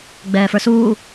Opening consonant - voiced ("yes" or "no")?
yes